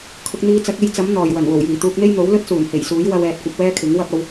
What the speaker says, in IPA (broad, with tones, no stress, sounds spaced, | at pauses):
kʰ ʊ˧ k̚ n̪ iː˧ t͡s ɐ˨˥ k̚ e˧ j t͡s ɐ˨˥ m n̪ ɔː˨˩ j w ɐ˨˩ n w o˨˩ w j iː˨˩ t̪ uː˧ k̚ n̪ e˥ j n̪ o˨˥ w l ɵ˥ t̚ s uː˨˩ n h e˨˩ j s uː˨˥ j w ɐ˧ w ɛː˨ t̚ kʷ ɐ˧ p̚ w ɛː˥ kʰ ɪ˨˥ ŋ w ɐ˥ p̚ ɐ˨˧ w